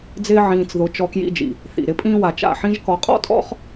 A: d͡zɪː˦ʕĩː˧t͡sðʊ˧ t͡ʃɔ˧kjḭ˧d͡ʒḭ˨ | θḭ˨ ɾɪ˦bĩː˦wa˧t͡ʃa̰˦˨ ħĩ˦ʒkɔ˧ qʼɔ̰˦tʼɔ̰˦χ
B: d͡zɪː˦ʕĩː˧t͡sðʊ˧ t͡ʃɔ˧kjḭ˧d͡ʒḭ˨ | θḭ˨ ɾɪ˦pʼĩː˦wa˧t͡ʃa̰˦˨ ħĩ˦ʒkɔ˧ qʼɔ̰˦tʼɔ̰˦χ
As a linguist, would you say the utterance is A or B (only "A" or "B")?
B